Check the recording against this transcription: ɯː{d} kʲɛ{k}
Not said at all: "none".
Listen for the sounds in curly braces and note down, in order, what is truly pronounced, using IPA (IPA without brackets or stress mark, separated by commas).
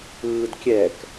d, k